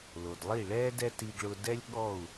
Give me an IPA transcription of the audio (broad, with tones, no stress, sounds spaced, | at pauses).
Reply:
l o˩ d lˠ i˥˩ ɭ ɛː˥ d ɛ˥ t i˧ ɡ ɭ ʊ˧ d ɛ˥ lʲ ɠ ɔ˥˩ u̯